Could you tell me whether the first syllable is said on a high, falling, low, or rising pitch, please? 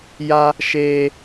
high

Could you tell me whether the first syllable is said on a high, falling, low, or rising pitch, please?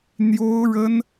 high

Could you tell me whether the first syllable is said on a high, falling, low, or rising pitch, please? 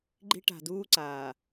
high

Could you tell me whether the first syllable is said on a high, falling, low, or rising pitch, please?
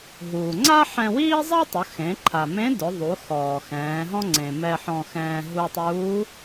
low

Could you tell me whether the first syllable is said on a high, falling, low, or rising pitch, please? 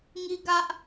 high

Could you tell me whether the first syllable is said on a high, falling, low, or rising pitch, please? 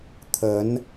rising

